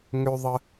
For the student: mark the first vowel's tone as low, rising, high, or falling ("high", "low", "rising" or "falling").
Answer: low